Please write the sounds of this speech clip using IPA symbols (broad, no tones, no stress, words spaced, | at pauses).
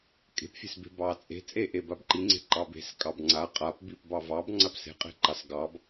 kʼe̤pfʲe̤sbe̤ bɑt͡sʼe̤ t͡sʼeʔe babǃiŋ͡ǀe̤ ǃɑbe̤s kʼɑbŋ͡ǀa qʼap bipbɑ vɑb ŋ͡ǀapse̤qʼe̤ǃɑs ɡɑb